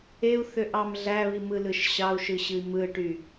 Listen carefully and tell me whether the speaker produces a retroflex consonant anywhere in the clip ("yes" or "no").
yes